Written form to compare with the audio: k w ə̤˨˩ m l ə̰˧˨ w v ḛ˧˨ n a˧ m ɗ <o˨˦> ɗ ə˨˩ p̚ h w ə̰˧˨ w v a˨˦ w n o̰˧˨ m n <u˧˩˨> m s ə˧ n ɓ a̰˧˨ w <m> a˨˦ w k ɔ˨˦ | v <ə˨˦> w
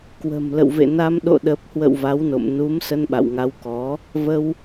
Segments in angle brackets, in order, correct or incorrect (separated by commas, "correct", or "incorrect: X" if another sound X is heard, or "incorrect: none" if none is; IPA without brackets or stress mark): incorrect: o̰˧˨, incorrect: u˨˦, incorrect: ŋ, incorrect: ə˧